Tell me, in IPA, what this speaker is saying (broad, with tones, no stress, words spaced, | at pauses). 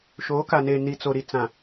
ʃoː˨˦ka˨neː˨ ni˨t͡so˨ ɾi˨t͡sã˨